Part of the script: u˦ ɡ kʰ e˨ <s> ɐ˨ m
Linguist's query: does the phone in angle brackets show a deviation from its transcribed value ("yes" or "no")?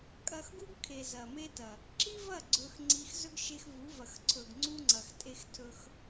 yes